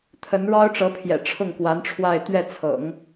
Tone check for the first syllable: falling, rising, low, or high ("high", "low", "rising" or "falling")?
rising